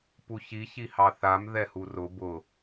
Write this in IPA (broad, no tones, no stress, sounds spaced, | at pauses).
p u ç i ç i h ɑ θ a m ð ɛ h u r ʊ b ʊ